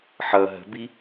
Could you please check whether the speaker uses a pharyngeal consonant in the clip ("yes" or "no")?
yes